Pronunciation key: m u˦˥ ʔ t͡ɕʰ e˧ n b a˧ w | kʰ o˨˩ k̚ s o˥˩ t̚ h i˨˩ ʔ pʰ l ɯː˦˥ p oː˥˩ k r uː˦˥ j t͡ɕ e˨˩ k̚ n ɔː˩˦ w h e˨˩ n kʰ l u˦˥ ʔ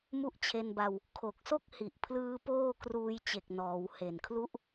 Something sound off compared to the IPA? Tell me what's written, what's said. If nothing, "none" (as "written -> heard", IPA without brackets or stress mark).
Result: t̚ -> k̚